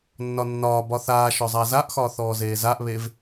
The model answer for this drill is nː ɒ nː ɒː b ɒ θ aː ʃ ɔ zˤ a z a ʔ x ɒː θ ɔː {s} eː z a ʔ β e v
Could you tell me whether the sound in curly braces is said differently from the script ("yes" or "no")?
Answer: yes